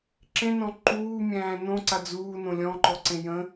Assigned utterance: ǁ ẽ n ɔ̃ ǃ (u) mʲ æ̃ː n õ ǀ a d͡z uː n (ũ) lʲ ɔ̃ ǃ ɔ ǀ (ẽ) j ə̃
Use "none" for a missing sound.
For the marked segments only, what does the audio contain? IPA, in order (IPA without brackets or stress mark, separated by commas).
uː, õ, ẽ